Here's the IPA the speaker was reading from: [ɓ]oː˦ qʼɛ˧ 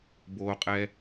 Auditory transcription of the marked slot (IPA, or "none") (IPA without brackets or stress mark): b